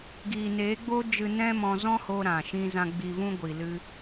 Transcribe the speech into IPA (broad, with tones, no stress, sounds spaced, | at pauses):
ɡ iː˨ n eː˨˦ ɡ͡b oː˦ d͡ʒ ɨ˧ n ɛ̃˦ m ɔ̃˧ z ɔ̃˦ h oː˧ ɾ ã˨ ʃ ĩ˧ z ã˧ ɡ͡b i˧ v ũ˦ ɡʷ i˨ l ɨ˧